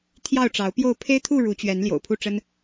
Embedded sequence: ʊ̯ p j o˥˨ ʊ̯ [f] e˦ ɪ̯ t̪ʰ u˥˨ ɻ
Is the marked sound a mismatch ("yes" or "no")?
yes